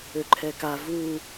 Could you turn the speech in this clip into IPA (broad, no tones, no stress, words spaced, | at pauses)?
øǃʰɛka vu